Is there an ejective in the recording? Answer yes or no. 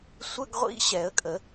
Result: yes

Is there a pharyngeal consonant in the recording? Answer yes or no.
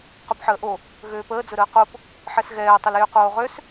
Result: yes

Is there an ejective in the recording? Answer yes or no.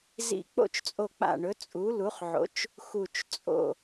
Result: yes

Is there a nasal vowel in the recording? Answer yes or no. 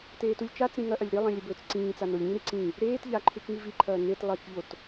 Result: yes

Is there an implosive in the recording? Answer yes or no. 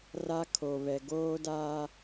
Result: no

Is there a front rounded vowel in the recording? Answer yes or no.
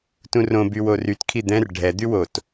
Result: yes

